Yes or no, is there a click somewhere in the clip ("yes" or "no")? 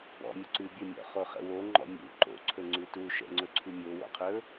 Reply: yes